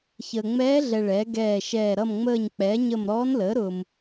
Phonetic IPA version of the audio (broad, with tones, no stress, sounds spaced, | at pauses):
ç əː˨ ŋ͡m ɛː˧˥ ɮ ɛ˨ ɭ ɛ˩˥ ɡ ɛː˦˨ ʃ ɛː˦˨ ɾ ʌ˦˨ m ŋ͡m əː˦˨ ɲ k͡p ɛ˩˥ ɲ ə˦˨ m ɾ ɔː˧˥ n l əː˩˥ ɾ ʊː˨ m